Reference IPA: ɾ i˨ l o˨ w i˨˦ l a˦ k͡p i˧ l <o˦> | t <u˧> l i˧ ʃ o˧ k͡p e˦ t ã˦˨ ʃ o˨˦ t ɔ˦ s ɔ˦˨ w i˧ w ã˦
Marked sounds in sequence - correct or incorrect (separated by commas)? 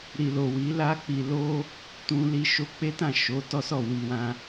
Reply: correct, incorrect